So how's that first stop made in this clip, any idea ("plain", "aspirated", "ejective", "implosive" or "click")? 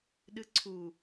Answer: implosive